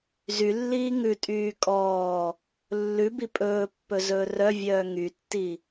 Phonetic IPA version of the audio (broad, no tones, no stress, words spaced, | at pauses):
zylːiː ŋʉtʼyː kʼɔː | lːʉbi pʼɵːpːɵ zɵːrœvʲœː ŋytːi